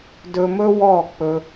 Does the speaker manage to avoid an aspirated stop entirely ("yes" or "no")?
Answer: yes